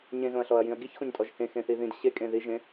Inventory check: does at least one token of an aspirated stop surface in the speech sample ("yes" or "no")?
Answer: no